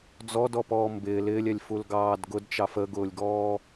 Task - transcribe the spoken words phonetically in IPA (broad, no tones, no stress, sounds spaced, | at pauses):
d͡z ɔ d ɔ p ɔː m b ɪː l ɪː lʲ ɛ lʲ f u l ɡ ɑː d ɡ ʊ d t͡ʃ ɑ f ə ɡ ʊː lʲ ɡ ɔː